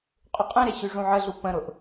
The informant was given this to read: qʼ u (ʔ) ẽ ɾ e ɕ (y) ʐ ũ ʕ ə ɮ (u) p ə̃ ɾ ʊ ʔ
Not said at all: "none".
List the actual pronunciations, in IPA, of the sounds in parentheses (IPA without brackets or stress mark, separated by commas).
qʼ, y, u